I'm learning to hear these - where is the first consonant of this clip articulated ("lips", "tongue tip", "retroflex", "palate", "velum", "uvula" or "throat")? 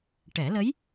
retroflex